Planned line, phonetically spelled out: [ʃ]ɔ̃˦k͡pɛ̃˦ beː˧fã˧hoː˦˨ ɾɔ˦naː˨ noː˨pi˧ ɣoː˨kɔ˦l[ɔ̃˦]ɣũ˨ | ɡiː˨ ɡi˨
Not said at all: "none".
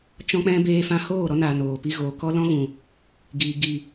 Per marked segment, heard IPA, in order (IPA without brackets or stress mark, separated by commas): t͡ʃ, ɔ̃˦